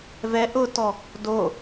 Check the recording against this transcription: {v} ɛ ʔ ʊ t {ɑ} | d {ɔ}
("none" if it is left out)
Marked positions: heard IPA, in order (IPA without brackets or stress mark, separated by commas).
v, ɔ, o